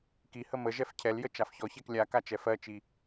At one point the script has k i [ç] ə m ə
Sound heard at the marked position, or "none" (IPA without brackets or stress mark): h